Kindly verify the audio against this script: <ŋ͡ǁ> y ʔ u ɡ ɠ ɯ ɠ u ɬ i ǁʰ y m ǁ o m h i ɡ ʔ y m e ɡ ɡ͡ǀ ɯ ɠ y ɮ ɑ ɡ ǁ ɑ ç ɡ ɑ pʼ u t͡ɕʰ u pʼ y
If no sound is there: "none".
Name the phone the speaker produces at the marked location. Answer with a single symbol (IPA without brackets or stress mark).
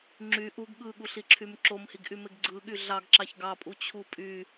ŋ͡ǁ